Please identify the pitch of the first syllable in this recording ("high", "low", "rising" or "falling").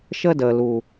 high